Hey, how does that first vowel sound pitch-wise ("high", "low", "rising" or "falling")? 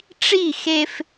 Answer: falling